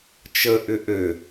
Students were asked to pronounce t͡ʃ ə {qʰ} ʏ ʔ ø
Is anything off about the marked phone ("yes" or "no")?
yes